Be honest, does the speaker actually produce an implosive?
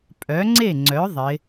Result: no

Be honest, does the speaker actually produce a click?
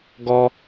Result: no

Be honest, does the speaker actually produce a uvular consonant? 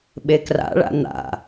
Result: no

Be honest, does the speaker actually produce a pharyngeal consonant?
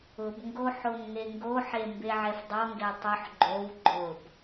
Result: yes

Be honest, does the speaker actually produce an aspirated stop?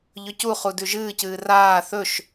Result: no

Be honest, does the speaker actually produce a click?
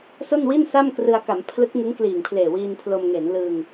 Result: no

